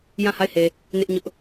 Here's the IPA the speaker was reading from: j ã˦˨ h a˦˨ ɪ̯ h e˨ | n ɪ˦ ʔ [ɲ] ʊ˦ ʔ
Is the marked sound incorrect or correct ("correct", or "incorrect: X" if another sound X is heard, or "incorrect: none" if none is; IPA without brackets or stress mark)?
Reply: correct